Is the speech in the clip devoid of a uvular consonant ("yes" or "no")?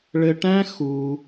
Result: yes